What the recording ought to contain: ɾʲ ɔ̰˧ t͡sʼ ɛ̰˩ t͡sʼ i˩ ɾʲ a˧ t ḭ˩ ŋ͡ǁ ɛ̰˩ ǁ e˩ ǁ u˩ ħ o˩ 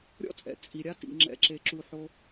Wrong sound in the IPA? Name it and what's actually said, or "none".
none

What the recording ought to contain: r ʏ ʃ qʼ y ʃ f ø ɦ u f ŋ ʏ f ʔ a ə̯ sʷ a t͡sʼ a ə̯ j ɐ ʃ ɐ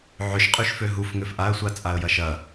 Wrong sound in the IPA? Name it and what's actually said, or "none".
r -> ʕ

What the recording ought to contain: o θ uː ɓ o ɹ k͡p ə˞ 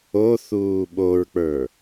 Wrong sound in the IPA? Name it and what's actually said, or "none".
none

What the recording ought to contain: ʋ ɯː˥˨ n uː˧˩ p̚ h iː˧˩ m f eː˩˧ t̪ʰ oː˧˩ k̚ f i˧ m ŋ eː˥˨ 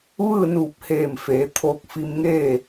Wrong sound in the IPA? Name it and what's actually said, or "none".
iː˧˩ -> eː˧˩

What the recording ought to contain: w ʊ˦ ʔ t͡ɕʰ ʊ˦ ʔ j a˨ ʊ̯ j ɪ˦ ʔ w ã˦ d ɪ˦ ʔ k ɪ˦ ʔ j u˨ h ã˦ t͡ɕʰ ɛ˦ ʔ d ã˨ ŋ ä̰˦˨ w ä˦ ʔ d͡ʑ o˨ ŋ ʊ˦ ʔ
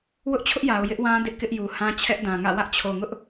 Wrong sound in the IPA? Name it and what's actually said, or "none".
d͡ʑ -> t͡ɕʰ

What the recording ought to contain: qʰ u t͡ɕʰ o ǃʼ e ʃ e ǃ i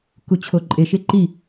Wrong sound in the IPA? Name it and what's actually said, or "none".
qʰ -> k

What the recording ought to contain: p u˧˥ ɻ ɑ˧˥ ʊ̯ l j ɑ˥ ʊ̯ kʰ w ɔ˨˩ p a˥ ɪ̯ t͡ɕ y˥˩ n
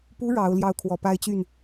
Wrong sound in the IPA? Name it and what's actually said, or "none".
none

